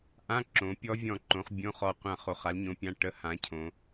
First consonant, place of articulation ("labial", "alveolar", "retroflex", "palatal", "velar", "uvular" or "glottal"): glottal